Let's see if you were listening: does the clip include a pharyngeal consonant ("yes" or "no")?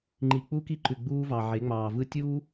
yes